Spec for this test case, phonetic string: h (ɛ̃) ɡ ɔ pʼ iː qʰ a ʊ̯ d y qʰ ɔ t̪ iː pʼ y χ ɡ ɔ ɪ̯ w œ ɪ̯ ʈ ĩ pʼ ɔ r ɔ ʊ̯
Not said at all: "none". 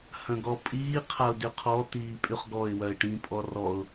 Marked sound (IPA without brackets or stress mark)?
œ̃